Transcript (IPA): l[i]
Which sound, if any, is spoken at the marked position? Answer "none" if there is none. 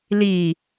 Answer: i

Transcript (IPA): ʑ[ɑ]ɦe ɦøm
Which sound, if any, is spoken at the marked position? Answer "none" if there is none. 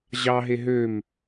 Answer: ɑ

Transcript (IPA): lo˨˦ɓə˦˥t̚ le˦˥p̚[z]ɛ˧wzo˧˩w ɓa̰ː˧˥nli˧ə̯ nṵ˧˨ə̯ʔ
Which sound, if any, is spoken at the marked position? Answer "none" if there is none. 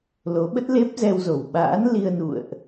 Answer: z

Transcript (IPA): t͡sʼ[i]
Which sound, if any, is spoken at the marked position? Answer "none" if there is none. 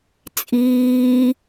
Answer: iː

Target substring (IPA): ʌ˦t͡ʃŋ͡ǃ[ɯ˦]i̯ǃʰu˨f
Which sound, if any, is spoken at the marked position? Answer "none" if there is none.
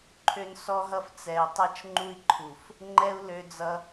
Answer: u˦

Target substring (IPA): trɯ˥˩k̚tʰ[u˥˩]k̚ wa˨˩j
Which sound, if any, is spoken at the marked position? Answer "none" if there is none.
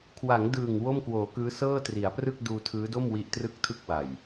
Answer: ɯ˥˩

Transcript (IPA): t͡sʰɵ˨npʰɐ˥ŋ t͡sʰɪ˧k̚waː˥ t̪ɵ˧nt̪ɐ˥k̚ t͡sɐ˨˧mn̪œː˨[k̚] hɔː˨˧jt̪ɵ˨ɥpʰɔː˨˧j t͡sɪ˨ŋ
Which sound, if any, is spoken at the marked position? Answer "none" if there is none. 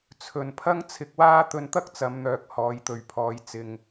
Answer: k̚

